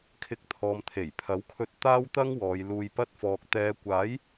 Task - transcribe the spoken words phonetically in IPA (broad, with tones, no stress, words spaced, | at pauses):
kʰɪ˨k̚ t̪ʰɔː˨mt̪ʰe˨˩jpʰɐ˨˥wkʰɵ˧t̚ t̪aː˥wt̪ɐ˥ŋwɔː˨˧j luː˨jpɐ˧t̚fɔː˨k̚ t̪ɛː˨˧kʷaː˨˥j